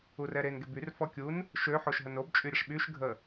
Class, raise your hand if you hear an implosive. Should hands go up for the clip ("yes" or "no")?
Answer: yes